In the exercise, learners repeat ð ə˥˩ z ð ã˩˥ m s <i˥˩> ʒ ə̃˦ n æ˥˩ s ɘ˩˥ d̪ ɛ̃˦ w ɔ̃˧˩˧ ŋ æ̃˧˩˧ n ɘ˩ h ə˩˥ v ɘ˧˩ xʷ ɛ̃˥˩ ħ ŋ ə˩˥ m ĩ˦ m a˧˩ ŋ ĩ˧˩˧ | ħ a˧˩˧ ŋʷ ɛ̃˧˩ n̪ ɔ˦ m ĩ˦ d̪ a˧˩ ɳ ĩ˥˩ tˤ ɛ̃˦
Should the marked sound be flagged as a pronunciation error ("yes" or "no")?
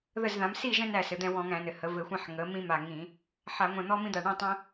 no